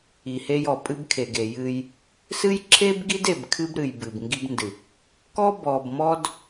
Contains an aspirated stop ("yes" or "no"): yes